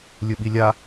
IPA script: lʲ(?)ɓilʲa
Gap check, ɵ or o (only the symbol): ɵ